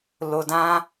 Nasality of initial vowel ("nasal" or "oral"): oral